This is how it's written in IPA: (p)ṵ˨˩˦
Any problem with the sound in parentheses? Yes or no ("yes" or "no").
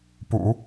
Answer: no